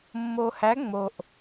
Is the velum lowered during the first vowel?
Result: no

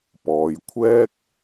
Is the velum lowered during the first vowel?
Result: no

